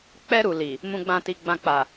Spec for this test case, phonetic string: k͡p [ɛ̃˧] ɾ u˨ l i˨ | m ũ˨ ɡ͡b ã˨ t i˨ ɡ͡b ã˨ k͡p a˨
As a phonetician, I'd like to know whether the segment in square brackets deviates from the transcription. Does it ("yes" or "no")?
yes